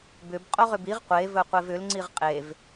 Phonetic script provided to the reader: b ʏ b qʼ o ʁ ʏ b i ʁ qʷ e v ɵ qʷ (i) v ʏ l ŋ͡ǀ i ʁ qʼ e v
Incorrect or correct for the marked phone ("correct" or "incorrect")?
incorrect